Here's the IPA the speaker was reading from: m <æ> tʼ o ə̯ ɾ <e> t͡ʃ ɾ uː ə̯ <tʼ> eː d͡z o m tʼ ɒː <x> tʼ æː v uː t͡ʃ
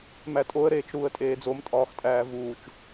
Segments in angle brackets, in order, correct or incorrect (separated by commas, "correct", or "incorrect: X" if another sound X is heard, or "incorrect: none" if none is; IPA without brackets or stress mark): correct, incorrect: eː, correct, correct